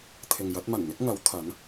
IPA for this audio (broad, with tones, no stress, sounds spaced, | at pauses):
t̪ʰ ɪ˨ ŋ j ɐ˨˥ t̚ m ɐ˨˩ n n̪ ɪ˨˥ k̚ ŋ ɐ˨˥ w t̪ʰ ɐ˨˥ n